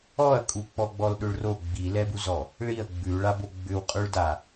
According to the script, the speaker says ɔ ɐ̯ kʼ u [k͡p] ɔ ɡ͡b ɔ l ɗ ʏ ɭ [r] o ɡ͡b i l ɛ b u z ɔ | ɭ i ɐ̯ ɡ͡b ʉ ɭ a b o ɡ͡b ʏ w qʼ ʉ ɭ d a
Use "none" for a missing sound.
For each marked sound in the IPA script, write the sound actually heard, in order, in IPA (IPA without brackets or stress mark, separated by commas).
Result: k͡p, r